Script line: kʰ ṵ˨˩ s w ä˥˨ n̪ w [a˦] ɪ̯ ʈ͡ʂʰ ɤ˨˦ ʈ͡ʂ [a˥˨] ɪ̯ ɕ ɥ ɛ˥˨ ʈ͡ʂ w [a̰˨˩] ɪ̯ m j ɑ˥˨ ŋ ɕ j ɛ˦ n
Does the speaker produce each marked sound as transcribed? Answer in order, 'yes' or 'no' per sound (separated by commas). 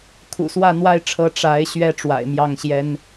yes, no, yes